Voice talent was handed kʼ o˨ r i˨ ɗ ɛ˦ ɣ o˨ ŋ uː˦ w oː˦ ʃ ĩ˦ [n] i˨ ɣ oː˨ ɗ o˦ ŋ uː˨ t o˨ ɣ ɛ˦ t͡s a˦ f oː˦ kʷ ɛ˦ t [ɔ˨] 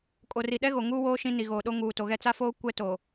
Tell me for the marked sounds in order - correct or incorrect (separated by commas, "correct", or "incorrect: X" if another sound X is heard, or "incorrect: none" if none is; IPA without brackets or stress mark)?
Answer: correct, incorrect: o˨